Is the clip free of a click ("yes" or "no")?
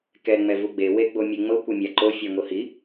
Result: no